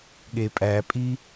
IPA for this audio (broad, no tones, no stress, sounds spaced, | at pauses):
ɠ e pʼ æ pʼ i